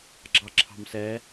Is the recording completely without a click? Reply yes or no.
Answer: no